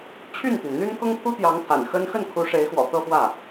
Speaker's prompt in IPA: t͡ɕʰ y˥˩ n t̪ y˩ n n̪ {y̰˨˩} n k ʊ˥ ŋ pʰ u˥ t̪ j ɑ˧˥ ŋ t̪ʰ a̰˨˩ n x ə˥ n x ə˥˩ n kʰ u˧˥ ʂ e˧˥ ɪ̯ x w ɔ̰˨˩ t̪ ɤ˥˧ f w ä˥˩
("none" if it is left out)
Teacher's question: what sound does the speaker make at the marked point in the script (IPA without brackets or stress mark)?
y˥